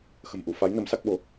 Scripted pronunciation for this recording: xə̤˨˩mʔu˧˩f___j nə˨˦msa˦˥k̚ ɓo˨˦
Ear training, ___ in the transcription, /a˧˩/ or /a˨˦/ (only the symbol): a˨˦